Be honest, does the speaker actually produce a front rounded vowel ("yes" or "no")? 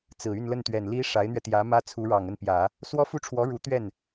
yes